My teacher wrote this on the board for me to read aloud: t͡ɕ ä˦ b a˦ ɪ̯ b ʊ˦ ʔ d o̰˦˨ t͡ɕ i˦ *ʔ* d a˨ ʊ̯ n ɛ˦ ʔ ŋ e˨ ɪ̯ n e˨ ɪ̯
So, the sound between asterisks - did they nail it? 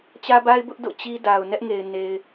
no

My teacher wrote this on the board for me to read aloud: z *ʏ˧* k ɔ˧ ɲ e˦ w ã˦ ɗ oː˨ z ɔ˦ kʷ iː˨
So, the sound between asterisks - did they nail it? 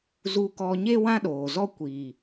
no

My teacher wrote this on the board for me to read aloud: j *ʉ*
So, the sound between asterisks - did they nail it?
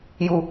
no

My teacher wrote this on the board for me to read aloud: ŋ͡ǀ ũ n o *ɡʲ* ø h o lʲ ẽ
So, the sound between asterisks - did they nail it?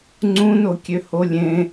no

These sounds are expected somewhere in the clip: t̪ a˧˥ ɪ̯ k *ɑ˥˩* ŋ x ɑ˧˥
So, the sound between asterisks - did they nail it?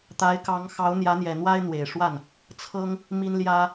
no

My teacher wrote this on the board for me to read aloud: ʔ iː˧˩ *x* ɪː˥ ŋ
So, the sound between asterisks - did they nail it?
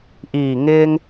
no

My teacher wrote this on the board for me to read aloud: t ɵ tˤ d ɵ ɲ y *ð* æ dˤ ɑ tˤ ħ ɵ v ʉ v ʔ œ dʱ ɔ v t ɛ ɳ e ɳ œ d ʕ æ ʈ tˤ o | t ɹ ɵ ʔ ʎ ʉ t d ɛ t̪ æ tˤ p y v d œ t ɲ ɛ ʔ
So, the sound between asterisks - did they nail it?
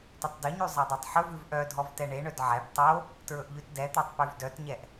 no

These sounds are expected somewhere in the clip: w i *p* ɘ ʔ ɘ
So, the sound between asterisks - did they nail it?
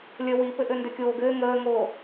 yes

